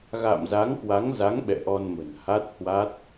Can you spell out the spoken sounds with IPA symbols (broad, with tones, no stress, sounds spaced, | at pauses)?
ɣ a̰ː˧˨ m z a˨˦ ŋ k w a˨˦ ŋ z a˨˦ ŋ ɓ ɛ̰˧˨ ʔ ɔ˧ n m ə̤˨˩ n h a˦˥ t̚ h w a˦˥ t̚